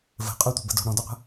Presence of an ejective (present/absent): present